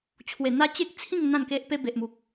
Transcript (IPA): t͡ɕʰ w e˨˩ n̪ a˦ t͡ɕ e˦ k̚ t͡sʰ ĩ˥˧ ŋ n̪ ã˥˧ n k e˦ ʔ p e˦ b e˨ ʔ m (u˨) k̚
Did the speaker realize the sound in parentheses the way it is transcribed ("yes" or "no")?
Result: yes